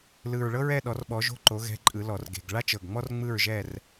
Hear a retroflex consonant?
yes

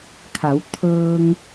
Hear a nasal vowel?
no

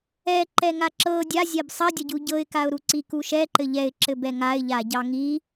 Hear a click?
yes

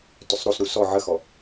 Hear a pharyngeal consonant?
yes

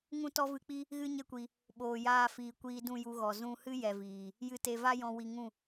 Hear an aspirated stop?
no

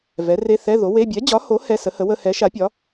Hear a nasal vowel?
no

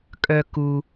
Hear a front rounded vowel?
yes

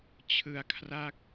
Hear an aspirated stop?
yes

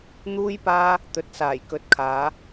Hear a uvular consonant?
no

